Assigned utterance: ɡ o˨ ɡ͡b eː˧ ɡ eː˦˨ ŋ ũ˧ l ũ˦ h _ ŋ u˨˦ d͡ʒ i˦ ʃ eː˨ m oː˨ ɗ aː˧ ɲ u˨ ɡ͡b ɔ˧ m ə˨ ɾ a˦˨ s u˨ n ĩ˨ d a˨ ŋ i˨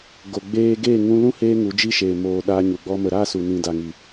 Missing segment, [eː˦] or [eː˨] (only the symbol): eː˦